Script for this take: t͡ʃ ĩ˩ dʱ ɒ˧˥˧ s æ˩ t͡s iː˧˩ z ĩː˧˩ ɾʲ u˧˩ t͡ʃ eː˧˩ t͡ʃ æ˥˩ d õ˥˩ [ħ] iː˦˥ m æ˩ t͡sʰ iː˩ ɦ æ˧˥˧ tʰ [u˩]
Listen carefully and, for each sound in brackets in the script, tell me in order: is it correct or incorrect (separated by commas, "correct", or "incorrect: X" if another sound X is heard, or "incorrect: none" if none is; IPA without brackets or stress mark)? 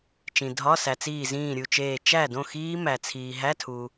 incorrect: x, correct